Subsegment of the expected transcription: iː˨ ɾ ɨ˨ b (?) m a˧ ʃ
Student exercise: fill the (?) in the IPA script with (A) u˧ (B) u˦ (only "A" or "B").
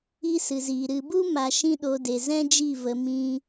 B